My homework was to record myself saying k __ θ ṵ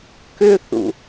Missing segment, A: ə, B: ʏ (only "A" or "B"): B